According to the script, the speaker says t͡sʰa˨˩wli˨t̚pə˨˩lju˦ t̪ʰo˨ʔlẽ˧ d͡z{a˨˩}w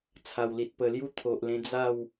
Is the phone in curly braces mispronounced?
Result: yes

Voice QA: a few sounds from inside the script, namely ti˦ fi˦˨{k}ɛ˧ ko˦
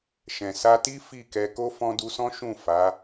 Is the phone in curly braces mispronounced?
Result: no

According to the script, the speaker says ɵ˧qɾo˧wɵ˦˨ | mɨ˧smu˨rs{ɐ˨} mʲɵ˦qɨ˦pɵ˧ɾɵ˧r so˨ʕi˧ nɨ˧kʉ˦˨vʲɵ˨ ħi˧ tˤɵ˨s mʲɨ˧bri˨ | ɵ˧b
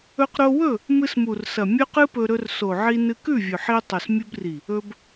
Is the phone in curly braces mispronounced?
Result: no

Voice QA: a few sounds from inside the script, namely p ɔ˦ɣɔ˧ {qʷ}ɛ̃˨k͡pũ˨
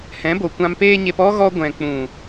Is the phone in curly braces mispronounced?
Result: yes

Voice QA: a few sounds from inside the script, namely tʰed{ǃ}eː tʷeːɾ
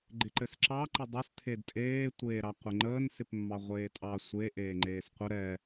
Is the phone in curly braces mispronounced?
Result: yes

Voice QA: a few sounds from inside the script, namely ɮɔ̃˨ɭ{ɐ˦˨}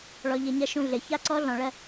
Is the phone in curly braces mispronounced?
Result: no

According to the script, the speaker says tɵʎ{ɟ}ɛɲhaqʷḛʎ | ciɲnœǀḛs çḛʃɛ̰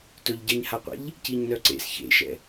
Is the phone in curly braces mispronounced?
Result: no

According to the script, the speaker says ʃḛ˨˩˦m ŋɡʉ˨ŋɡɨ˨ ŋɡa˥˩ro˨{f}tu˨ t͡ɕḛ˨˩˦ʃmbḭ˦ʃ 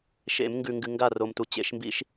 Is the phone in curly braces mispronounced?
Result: yes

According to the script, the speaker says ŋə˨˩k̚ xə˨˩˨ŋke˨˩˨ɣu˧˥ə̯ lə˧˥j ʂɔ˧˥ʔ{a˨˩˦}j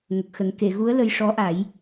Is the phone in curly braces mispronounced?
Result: no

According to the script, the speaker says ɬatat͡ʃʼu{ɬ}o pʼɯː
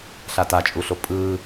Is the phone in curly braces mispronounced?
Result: no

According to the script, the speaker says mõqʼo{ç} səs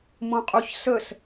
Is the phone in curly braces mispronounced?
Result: no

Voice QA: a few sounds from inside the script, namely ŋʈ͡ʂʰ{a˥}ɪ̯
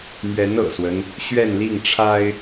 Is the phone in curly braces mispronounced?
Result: no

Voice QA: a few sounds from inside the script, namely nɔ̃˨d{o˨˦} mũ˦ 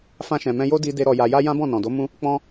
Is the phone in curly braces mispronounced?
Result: no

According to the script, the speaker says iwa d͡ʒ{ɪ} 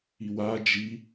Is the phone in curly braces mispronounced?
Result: yes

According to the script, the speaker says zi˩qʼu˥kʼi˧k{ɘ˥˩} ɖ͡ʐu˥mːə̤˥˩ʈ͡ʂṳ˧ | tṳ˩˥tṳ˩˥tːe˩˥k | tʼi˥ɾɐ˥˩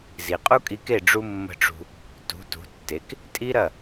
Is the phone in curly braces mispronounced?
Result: yes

